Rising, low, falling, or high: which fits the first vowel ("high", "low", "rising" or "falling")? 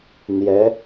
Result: rising